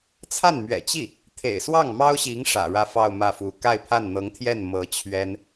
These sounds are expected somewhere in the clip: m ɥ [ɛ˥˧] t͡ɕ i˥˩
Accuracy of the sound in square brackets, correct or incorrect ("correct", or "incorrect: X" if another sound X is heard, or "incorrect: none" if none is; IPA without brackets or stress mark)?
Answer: incorrect: ɛ̰˨˩